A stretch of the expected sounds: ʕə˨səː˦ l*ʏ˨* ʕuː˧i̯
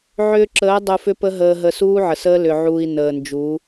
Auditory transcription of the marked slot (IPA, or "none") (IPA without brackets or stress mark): ʏ˨